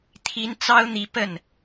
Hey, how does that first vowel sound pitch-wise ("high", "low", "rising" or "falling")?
high